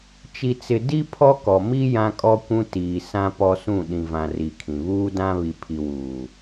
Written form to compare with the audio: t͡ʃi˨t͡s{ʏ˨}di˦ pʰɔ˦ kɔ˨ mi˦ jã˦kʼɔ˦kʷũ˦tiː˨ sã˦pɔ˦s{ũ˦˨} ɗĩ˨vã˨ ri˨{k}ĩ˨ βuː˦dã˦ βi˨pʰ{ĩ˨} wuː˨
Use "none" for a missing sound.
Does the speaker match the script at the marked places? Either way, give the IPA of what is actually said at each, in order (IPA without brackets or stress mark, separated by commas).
ɪ˨, ũ˦˨, kʰ, i˨